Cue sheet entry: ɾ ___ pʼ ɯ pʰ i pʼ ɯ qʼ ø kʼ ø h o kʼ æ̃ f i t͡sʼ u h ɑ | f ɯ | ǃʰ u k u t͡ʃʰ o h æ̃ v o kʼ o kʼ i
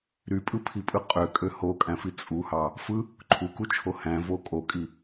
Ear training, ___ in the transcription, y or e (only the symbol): y